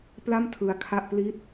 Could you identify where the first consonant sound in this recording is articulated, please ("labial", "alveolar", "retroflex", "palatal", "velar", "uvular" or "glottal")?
labial